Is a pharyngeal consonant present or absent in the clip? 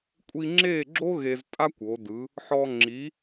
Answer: present